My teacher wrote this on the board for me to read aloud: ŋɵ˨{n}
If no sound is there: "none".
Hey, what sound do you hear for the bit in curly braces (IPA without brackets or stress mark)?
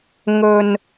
n